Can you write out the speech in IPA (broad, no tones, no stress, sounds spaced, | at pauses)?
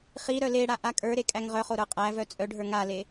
χ i ɾ œ l e ɽ a ʔ a kʼ ə˞ ɾ e kʼ æ ŋ ʁ œ χ o ɾ ə˞ qʼ æ v œ t͡sʼ œ ɖʱ ə˞ ŋ a l e